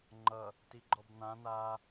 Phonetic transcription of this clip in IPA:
ŋ͡ǃ ʌ | t i ɡ͡ǃ ɔ b n̪ ã n̪ a

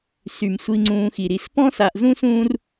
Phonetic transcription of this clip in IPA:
s y˩ m sʷ i˨ ŋ͡ǀ ũː˨ x i˩ ɾ i˨ s p ɔ̃˥ s a˨ ʔ z ũ˥ s ũː˦ r

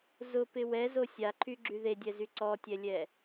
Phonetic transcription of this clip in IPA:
z ʊ p ɪ w ɛ z o sʲ a ǃʰ y ɡ͡ǁ y ð e dʲ ɛ z y ǀ ɔ tʲ ɛ lʲ ɛ

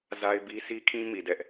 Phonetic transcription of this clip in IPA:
z a˦ ɪ̯ b i˦ s i˦ kʰ ĩ˦ m i˨ d ɛ˦ ʔ

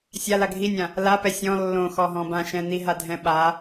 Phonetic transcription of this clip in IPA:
sʲ a l a ɡʱ i nʲ ã | l a p ɛ sʲ ɔ̃ lː õ x ɔ ɦ ɔ̃ b ã ʃ ɛ̃ n i ɦ a dʱ ɛ̃ ɓ a

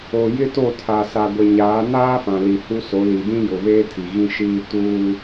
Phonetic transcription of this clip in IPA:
o˨ j ɪ˦ t o˦˨ tʰ a˨ s a˨ ɡʷ e˨ ɲ aː˨˦ n aː˦ f ã˨ l i˨ h u˦ s o˨˦ l i˨ d ĩ˦ j ʊ˨ β eː˦ tʰ i˨ ɣ ĩ˦ ʃ iː˦ t uː˦

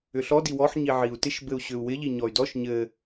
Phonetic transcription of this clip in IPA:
ʏ ɬ ɔ d i w ɔ ħ ɲ i ʕ i u̯ t ɪ ʃ b ɘ u̯ ɕ ʏ u̯ w ɪ ʎ i ɲ ɔ y̯ d ɔ ʃ ɲ ɘ

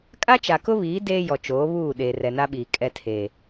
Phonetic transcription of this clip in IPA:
kʼ a˦ t͡ʃ a˨ k ʊ˦ β iː˨˦ d eː˦ j ɔ˨ t͡ʃ oː˨˦ β uː˦˨ ɗ eː˨ r ɛ˨ n a˦ ɓ iː˨ kʼ ɛ˦ tʰ e˨

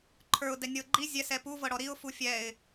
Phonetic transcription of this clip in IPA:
ǃʰ ə˞ ʊ̯ d ɛ nʲ ɤ ɡ͡ǃ i zʲ ɛ s ɛ p u v ɤ ɽ ɔ ɾ i ʊ̯ f u fʲ ɛ ɪ̯

